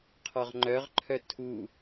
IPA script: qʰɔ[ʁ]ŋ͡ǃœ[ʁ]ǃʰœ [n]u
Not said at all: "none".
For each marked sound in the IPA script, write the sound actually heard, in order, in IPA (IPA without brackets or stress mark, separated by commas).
ʁ, ʁ, tʰ